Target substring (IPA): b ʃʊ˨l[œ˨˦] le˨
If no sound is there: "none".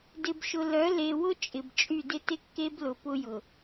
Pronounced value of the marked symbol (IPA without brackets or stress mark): œ˨˦